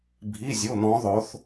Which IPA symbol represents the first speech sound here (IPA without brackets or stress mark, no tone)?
bʱ